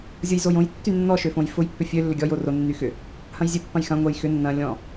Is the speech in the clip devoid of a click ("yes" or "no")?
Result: yes